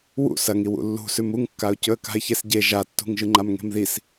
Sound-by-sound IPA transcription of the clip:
wṵ sɐŋiw ṵlːṳsʉm uŋkːaʊ̯cɵə̯ ka̤ɪ̯çesɟe ʒatːṳŋ ʒɨŋ͡ǃamŋe̤mðis

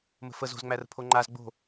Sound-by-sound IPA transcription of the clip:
mə̤fəz o̤zŋ͡mærə̤pʰo ŋ͡ǃaz ɡ͡bo̤

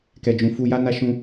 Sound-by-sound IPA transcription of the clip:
kɛ˨d͡ʒũ˨fu˧ja˦ na˦ʃũ˧

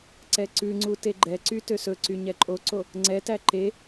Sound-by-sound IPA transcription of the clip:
ǀɛǀʉŋ͡ǀu teɡ͡ǃɛǀy tøsɵǀy ɲɛǃʼoǀo | ŋ͡ǀɛtæ ǃe

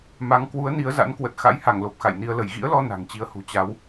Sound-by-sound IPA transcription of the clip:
ma˨˦ŋ kwu˨˦ə̯ni˨˦ə̯ za̰˧˥nkwə˨˩t̚ xa̰˧˥jha˧˩ŋlo˨˩p̚ xa̰˧˨jni˧ə̯lə˧˩j ɣḭ˧˥ə̯lɔ˧ na̤˨˩ŋt͡ɕi˨˦ə̯hṳ˨˩ t͡ɕa˨˦w

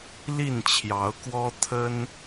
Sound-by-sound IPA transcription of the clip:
li˥˨nt͡ɕʰjɑ˨˦ʊ̯kwɔ˦ t̪ʰə˦n

